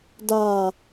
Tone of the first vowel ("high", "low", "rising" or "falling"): low